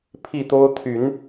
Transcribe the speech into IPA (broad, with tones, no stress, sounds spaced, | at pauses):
pʰ i˥˨ t̪ o˦ ʊ̯ t̪ʰ y˨˦ n